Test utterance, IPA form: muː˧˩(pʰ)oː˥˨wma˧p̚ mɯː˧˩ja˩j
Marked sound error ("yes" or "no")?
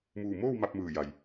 yes